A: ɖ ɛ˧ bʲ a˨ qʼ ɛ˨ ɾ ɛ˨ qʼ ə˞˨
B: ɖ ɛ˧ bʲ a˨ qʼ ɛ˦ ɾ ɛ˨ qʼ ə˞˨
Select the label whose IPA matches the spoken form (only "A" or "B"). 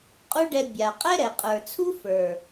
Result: B